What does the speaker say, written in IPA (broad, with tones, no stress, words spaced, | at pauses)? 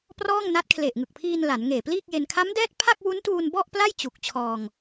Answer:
prɔː˥˩ŋna˦˥t̚kʰle˨˩ʔ ŋɯ˨˩k̚pʰiː˧n la˩˦n ŋeː˨˩pliː˥˩k̚je˧n kʰa˦˥mdɛː˦˥t̚ pʰa˥˩k̚wu˦˥ntuː˧n bɔ˥˩ʔpla˥˩jt͡ɕu˨˩k̚ t͡ɕʰɔː˧ŋ